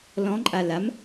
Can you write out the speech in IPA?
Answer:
l ɔ̃ ǃʼ a l a m

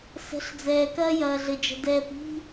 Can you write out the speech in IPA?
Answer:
s ə̤˨˦ ɬ d͡z ɛː˨ k ɐː˦ j ɐː˨ ɮ ɘ˨ d͡ʒ ə̤˨ d ɛː˨ p i̤˦

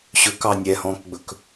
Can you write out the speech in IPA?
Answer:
ɕ ɵ k ɑ nʲ ɛ h ɔ̃ː k ɡ͡b ɵ k

